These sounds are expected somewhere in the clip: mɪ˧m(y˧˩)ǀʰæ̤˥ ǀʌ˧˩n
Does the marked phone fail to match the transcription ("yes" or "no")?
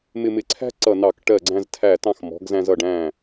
yes